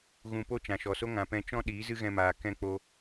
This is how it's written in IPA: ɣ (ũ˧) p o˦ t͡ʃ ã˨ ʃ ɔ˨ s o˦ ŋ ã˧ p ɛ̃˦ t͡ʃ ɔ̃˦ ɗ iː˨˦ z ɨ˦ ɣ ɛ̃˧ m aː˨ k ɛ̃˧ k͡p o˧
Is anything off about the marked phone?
no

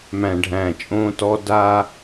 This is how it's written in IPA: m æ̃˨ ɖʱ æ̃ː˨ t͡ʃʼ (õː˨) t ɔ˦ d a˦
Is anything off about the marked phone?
yes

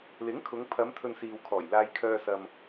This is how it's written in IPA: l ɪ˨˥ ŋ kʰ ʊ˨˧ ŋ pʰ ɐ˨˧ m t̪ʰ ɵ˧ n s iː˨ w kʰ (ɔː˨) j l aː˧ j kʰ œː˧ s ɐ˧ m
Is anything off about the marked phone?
yes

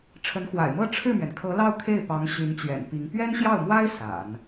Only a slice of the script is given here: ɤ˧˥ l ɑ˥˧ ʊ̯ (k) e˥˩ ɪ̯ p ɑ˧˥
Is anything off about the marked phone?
yes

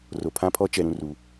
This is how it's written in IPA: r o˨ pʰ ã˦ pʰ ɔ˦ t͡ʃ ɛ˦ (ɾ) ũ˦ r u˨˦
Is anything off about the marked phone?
no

